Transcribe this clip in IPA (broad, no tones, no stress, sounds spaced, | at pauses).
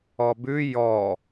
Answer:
ɔ b ʉ j ɔ